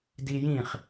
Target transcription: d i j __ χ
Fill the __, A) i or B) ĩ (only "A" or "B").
B